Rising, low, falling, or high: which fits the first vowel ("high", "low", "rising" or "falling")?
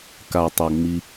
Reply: low